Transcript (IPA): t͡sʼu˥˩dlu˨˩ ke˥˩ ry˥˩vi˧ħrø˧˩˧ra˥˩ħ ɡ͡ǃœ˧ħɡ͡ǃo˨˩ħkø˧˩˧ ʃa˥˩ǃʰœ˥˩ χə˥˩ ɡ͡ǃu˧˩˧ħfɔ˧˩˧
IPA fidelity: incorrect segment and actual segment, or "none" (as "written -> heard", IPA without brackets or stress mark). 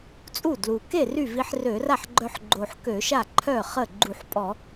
f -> pʼ